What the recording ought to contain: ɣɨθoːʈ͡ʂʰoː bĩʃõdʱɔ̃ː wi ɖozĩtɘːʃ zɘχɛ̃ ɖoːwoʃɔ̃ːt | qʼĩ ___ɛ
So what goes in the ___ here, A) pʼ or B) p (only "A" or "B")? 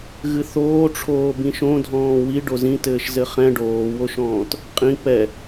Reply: B